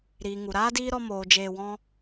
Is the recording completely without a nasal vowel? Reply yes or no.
no